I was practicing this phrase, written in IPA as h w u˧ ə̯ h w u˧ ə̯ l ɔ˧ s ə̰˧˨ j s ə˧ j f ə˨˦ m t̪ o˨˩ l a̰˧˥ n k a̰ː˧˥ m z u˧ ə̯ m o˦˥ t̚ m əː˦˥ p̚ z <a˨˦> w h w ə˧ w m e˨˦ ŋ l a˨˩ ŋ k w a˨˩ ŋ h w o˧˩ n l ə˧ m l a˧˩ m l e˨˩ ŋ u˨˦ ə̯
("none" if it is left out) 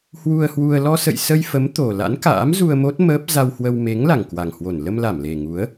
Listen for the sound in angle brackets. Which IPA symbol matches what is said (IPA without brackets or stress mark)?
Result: a˧